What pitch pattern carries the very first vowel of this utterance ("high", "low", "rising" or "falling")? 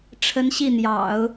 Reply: rising